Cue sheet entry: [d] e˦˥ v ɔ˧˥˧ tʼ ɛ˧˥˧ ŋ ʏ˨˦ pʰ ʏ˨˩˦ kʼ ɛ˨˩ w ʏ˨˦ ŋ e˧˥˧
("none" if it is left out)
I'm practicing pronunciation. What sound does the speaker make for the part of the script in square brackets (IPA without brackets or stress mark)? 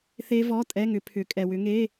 θ